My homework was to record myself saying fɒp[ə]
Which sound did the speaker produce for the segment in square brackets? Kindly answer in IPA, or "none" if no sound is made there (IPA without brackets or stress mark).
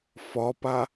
a